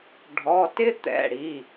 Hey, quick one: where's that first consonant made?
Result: retroflex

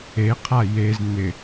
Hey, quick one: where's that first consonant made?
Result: uvula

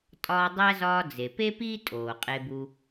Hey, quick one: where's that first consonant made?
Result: tongue tip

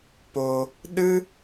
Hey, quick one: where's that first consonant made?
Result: lips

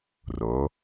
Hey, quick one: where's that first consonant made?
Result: tongue tip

